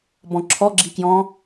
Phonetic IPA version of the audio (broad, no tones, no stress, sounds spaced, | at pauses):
b ɔ̃ ǁʰ ɔ ɡ͡ǁ i k j ɔ̃